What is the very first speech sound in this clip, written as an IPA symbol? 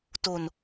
t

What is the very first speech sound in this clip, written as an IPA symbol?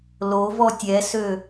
l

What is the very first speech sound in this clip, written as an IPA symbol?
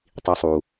tˤ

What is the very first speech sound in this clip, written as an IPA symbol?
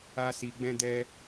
a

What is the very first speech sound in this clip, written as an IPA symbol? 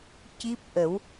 c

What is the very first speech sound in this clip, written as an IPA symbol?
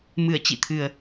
m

